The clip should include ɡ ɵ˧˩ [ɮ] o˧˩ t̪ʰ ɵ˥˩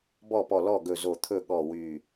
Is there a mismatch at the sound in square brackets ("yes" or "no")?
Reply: yes